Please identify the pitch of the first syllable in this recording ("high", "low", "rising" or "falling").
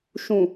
low